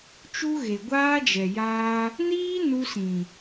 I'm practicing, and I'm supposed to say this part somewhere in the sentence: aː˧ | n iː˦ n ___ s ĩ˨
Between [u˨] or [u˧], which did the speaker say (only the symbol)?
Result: u˧